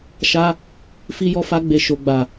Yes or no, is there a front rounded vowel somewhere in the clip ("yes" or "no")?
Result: no